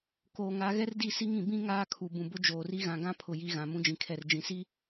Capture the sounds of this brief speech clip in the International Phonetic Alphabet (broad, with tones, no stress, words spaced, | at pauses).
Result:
koː˨ ŋa˨˦ ɣɛ˦rdi˦˨ si˦ŋĩ˨ bĩ˦ ŋaː˦kʰu˨ bũ˨bʊ˦d͡ʒoː˨ri˦ ɣã˨ɡã˦ pʰʊ˨ ji˦ɣã˨ mũ˦d͡ʒĩ˨kʰɛ˨r d͡ʒĩ˨si˦